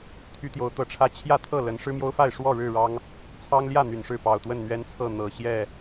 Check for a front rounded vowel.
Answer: present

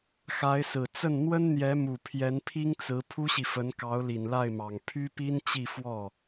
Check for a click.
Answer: absent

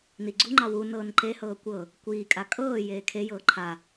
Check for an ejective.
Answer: present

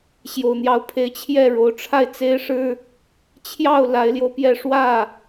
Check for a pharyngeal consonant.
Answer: absent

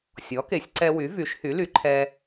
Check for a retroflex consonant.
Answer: absent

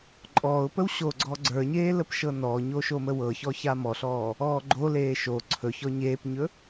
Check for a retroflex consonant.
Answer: absent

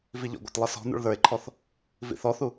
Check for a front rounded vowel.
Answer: absent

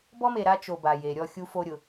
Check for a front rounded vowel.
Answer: absent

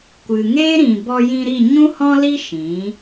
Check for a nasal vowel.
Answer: present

